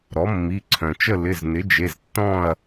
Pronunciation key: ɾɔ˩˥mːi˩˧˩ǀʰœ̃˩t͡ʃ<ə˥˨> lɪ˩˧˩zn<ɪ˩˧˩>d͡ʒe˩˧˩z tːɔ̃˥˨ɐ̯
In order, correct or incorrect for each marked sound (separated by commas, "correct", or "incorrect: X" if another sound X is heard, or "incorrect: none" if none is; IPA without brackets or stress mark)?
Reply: correct, incorrect: ɪ˩˥